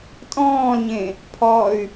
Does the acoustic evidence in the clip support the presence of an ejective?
yes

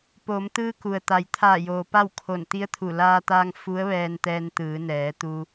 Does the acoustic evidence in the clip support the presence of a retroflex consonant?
no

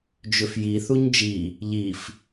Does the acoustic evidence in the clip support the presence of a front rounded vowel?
yes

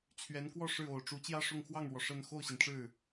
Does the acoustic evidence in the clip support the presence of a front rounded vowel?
no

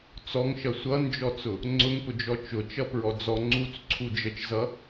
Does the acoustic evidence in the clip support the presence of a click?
yes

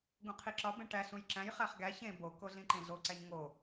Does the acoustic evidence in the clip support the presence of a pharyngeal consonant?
no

